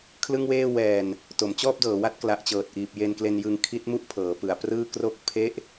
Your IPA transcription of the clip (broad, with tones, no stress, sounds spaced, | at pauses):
kʰ l ɯ˥˩ ŋ w eː˥˩ w ɛː˧ n | t o˩˦ m t͡ɕ ɔː˥˩ p̚ d ɤː˩˦ w a˦˥ t̚ k l a˨˩ ʔ t͡ɕ ɤː˨˩ t̚ ʔ iː˨˩ p̚ j e˧ n k l e˧ n j ɯ˧ ŋ kʰ i˦˥ t̚ m u˥˩ ʔ pʰ ɤː˩˦ p ɯ˩˦ a̯ p r ɯː˥˩ k r o˥˩ k̚ pʰ e˥˩ ʔ